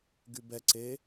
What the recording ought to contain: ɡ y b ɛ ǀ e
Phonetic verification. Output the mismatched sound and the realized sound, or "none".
none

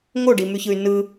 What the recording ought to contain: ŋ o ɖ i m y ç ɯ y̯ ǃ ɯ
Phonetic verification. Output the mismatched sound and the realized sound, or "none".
ǃ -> n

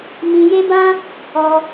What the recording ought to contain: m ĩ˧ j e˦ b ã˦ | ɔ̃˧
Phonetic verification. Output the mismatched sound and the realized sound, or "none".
ɔ̃˧ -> ɔ˧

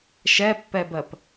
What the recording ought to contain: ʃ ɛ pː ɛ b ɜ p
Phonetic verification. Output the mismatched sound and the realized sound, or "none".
none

